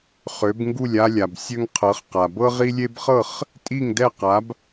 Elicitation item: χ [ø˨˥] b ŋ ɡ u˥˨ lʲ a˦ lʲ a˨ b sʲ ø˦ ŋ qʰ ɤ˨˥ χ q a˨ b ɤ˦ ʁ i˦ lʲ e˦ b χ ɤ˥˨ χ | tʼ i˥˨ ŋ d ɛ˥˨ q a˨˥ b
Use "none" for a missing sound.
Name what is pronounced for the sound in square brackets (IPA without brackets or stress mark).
ø˨˥